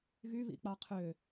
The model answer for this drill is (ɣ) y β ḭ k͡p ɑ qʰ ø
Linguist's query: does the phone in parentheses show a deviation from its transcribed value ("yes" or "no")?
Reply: no